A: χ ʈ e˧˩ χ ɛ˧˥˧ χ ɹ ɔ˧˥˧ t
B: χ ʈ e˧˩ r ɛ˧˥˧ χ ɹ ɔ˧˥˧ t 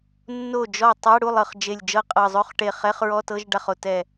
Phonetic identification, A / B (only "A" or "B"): A